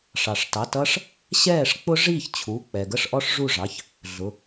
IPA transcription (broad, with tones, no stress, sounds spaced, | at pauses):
ʂ ɑ˩ ʂ t ɑ˩˧˩ t ʌ˦˥ ʂ | ɕ ɛː˥˩ ʂ k͡p ʊ˦˥ ʐ iː˥˩ ç t͡ɕʰ u˩˧˩ k͡p ɛ˩ ɡ ə˥˩ ʂ ʔ ɔ˦˥ ʂ ʐ u˥˩ ʐ ɑ˩˧˩ ç | ɮ ʊ˩˧˩